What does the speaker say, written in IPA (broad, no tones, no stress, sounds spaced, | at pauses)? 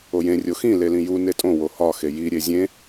o j ẽ rʲ o x ĩ l e l ĩ j u n e tʼ õ w o h ɒ x e j i ɾʲ e zʲ ẽ